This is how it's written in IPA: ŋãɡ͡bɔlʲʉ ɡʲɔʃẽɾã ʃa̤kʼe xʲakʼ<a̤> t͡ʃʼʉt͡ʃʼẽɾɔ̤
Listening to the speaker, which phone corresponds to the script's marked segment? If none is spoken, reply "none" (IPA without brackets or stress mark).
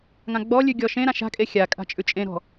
a̤